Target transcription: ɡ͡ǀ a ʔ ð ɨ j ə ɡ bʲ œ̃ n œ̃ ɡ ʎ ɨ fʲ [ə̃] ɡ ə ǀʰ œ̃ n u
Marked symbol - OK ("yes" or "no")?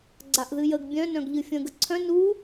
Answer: yes